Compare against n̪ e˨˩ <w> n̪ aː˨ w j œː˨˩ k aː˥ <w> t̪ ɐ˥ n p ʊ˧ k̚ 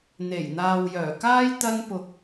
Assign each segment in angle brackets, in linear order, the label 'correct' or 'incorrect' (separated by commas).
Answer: incorrect, incorrect